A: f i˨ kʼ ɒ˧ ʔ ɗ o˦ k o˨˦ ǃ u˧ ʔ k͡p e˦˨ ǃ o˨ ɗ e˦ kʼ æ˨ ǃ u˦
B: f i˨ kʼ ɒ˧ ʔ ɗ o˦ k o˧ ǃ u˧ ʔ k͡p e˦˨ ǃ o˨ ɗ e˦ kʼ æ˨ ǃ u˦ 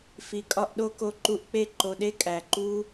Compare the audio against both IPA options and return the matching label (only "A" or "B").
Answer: B